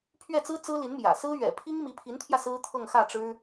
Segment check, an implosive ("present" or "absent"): absent